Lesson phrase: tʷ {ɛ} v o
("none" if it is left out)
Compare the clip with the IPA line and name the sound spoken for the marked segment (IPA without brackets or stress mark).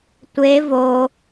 e